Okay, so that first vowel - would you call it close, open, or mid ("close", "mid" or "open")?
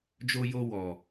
mid